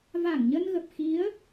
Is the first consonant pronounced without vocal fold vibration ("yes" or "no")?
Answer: no